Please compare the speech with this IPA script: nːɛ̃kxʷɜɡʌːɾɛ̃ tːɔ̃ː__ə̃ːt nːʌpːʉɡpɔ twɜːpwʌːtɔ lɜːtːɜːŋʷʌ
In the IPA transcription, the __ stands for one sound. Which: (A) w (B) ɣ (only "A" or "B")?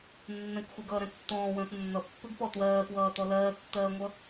A